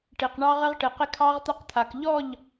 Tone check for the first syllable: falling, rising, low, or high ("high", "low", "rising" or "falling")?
low